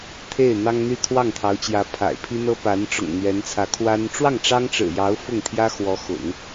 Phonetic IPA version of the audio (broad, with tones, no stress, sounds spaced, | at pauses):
t̪ʰ e˥˩ ɪ̯ n̪ ɑ˥ ŋ n̪ y˥˧ t̪ʰ w ɑ˥˩ ŋ t̪ʰ ɑ˧˥ ʊ̯ t͡ɕ j ä˧˥ pʰ a̰˨˩ ɪ̯ pʰ i˥ n̪ ɤ˥ p a˧˥ n ʈ͡ʂ ʊ̰˨˩ ŋ n̪ ɥ ɛ˧˥ n t͡sʰ ä˧˥ kʰ w a˥ n ʈ͡ʂ w ɑ˥˩ ŋ ʈ͡ʂ ɑ˥ ŋ ʈ͡ʂ ɻ̩˨˩ j ɑ˧˥ ʊ̯ f ʊ˥˩ ŋ t̪ʰ j ä˥ x w ɔ˧˥ x ʊ̰˨˩˦ ŋ